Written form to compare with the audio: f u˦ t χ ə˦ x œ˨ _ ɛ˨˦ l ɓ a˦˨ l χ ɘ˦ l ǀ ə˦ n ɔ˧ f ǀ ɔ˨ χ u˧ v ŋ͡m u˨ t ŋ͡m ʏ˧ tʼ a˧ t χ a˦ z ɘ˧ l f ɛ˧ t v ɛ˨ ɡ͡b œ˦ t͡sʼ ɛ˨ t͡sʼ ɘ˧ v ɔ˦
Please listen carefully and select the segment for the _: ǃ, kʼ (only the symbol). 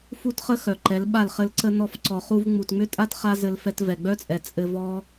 ǃ